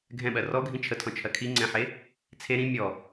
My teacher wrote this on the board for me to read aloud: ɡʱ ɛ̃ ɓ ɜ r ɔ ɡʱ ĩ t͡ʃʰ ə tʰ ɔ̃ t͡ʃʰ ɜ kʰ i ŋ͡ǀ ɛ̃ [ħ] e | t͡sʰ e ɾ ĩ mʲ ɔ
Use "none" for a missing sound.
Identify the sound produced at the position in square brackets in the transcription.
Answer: ħ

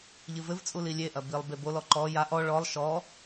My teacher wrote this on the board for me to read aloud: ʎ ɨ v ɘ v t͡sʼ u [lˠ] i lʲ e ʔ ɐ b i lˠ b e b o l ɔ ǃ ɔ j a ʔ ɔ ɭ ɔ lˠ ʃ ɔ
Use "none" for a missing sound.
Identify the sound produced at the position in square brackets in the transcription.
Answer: l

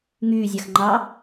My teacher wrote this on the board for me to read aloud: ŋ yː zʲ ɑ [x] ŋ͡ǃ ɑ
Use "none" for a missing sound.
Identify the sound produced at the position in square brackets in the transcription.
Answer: x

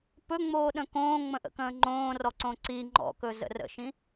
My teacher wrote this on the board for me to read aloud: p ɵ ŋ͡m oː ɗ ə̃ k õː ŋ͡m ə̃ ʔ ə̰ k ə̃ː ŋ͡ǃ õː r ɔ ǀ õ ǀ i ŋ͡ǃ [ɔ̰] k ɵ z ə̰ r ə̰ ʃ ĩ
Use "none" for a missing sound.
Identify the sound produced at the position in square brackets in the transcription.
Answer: ɔ̰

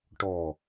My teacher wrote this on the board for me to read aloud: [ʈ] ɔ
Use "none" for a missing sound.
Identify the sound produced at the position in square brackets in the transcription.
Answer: ʈ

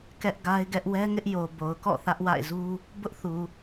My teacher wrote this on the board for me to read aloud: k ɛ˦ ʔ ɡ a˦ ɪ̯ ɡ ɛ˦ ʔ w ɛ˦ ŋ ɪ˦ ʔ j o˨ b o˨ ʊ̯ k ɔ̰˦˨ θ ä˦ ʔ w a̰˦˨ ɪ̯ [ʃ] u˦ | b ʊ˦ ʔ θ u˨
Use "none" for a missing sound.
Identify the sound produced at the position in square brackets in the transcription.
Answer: z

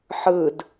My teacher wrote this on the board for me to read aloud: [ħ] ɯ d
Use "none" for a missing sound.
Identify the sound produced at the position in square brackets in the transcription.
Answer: ħ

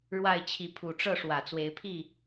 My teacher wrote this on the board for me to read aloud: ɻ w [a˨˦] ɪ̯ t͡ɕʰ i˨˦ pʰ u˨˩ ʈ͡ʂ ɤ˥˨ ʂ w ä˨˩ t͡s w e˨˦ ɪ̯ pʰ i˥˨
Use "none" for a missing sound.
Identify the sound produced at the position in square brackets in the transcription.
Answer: a˥˨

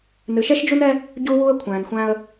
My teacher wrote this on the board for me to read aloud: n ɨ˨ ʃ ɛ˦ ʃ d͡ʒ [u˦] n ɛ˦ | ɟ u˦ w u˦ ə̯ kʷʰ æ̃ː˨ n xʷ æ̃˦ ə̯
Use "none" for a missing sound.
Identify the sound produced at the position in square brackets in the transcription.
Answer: u˦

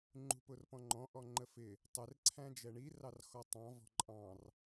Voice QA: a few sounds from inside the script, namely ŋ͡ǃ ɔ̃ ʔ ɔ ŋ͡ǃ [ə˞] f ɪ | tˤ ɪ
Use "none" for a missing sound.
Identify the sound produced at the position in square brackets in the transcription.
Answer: ə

